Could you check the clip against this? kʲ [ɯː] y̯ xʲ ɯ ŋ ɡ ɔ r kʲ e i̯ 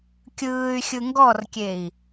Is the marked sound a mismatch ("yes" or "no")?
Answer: no